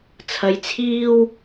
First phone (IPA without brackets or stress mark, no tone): t͡sʰ